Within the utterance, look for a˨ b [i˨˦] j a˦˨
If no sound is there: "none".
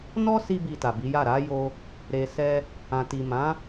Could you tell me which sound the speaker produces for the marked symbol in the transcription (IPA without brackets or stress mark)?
i˨˦